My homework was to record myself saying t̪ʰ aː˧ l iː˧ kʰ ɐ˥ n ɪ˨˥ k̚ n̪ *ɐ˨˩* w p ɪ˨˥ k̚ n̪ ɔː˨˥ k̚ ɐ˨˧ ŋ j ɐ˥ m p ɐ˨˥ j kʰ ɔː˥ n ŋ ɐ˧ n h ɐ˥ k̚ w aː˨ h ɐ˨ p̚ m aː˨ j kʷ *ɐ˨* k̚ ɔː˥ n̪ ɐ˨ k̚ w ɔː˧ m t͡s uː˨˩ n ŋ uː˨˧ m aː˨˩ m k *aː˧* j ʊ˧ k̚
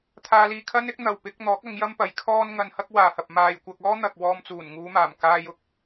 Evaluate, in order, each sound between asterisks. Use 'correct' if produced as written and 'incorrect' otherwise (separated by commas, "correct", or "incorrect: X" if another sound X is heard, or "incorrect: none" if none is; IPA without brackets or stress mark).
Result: incorrect: ɐ˨, incorrect: ɐ˧, correct